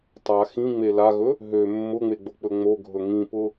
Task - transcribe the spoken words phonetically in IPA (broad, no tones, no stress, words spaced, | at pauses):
tˤa xĩŋ͡me laɣɵ | ɦø mːʊŋ͡meɡ͡bok͡pɵ ŋ͡moɡʱɵ ŋĩpʊ